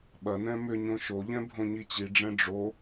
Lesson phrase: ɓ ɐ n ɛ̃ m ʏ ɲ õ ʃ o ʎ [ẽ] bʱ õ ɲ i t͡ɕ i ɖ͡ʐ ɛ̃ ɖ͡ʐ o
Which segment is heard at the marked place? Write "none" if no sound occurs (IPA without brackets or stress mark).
ɛ̃